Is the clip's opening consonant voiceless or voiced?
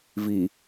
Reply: voiced